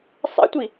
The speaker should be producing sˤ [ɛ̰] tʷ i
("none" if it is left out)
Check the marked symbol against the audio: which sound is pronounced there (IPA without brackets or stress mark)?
ɛ̰